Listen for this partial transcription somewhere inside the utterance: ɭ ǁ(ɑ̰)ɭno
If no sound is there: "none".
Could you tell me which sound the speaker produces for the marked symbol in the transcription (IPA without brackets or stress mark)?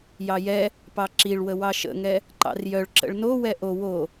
ə̰